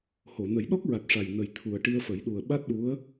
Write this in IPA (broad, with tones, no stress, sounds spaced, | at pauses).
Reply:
h o˨˩˨ n ə˨˩˦ j ɗ ɔ˦˥ k̚ ɹ a˨˩ t̚ ʂ a˨˩ j n ə˨˩ j t̪ʰ u˨˩ ə̯ ʈ i˧ ə̯ f ə˨˩˦ j ɗ u˨˩ ə̯ ɓ a˦˥ t̚ ɗ u˧˥ ə̯